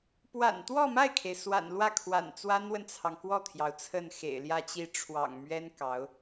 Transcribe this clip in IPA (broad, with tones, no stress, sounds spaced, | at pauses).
p w a̰˨˩ n t̪ w ɔ˥˧ m a˥˩ ɪ̯ kʰ e˩ ɪ̯ s w a̰˨˩ n l w ä˥˩ kʰ w a̰˨˩ n t͡s w a˥ n w ə˨ n t͡sʰ ɑ˩ ŋ k w ɔ˥˩ t̪ʰ j ɑ˩ ʊ̯ t͡sʰ ə˥˩ n x ḛ˨˩ ɪ̯ l j ä˥˧ t͡ɕ i˥˩ ʈ͡ʂʰ w ɑ̰˨˩ ŋ m ɥ ɛ˥ n k ɑ˧˥ ʊ̯